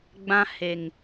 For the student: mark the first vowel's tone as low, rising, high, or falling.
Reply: high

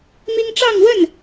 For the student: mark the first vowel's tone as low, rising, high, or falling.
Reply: high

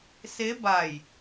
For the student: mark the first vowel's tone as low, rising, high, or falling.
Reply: rising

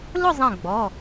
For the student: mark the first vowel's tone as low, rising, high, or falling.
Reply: falling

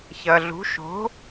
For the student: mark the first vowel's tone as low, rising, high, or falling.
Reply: low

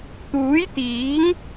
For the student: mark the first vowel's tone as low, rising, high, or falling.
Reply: rising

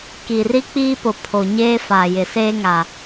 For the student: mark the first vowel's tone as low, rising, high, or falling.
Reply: low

